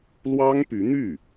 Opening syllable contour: high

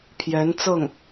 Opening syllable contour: rising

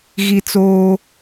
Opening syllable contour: high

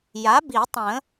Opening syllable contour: rising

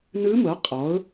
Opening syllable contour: rising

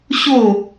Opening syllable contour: falling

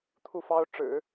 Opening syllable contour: falling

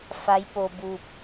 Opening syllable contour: rising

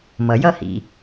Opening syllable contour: low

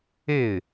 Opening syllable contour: falling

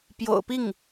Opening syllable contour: low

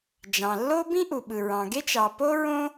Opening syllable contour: low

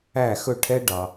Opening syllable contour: falling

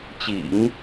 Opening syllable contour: low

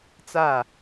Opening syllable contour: falling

